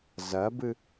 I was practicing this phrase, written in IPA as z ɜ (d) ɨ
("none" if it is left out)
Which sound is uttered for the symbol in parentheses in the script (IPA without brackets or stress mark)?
b